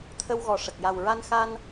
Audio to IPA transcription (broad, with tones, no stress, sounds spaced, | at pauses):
t̪ʰ ə˧ w ɣ ɔ˨˩ ʂ ə˨˩ k̚ j a˨˩ w ɹ a˧ n x a˧ n